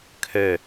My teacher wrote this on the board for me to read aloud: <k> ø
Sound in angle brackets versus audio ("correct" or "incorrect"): incorrect